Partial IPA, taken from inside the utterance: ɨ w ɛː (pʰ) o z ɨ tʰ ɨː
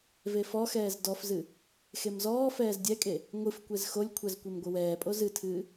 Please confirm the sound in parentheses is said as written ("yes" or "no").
no